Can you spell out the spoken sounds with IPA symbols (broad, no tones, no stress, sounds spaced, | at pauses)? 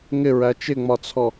ŋ ɪ ɹ æ t͡ʃ ɪ ŋ͡m ɒ t͡sʰ ɔ